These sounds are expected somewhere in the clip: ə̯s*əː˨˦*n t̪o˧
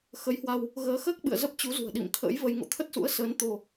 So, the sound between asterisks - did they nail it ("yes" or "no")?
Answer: yes